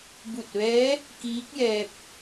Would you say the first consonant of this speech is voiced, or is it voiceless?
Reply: voiced